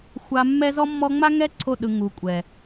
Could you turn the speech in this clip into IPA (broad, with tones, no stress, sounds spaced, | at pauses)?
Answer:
xʷ a˨ mː ɛ˦ z ɔ˦ mː ɔ˦ ŋ͡m a˦ ŋ ɛ˦ ǀʰ o˦˨ ɗ ɯ˨ ŋ u˨ kʷʼ ɛ˨